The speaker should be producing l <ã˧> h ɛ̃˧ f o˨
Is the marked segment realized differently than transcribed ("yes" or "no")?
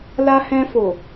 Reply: yes